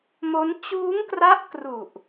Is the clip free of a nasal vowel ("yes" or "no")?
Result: yes